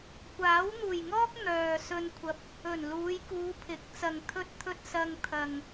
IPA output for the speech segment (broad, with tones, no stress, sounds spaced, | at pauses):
kʷ aː˨˥ w n̪ uː˨˩ j ŋ ɔː˥ k̚ n̪ œː˨ s ɵ˧ n kʷʰ ɐ˧ p̚ | ɵ˨˩ n l uː˨˧ j k uː˨˧ pʰ ɪ˨˥ k̚ t͡s ɐ˨ ŋ t̪ʰ ɵ˧ t̚ t̪ʰ ɵ˧ t̚ s ɐ˧ ŋ t̪ʰ ɐ˨ ŋ